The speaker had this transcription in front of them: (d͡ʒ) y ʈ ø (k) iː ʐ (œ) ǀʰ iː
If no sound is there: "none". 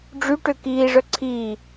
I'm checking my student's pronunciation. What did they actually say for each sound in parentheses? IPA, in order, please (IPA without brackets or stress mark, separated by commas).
ɖ͡ʐ, k, œ